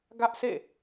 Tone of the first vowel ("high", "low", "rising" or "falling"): high